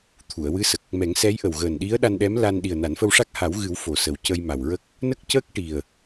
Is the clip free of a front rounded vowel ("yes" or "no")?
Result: yes